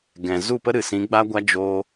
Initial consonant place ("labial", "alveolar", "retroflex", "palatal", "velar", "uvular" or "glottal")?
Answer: velar